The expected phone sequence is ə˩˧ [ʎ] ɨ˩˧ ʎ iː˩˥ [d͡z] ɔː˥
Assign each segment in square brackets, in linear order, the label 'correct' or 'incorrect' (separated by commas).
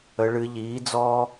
incorrect, correct